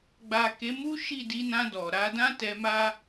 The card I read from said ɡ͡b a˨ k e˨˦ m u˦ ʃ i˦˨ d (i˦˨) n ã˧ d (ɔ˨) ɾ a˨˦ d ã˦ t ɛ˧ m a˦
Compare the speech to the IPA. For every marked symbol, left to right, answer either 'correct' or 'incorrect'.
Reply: incorrect: i˧, correct

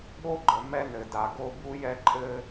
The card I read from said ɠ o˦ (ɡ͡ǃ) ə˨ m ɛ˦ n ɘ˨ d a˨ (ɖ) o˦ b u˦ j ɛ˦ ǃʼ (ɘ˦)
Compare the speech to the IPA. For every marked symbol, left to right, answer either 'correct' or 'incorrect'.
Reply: correct, incorrect: ɡ, correct

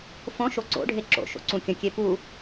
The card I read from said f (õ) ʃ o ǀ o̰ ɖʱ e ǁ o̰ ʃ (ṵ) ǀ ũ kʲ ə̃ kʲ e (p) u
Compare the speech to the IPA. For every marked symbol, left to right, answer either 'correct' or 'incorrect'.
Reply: correct, incorrect: o̰, correct

